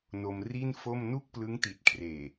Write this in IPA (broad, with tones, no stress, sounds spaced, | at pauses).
n o˧ m r i˥˩ n f o˥˩ m n u˥˩ k̚ p l ɯ˦˥ ŋ t i˨˩ t̚ kʰ r eː˨˩